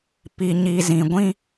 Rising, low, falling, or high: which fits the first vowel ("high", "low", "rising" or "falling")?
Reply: low